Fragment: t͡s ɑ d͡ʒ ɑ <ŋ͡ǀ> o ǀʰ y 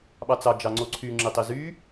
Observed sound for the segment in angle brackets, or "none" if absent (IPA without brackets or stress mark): ŋ͡ǀ